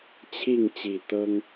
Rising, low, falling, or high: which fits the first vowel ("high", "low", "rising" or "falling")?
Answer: falling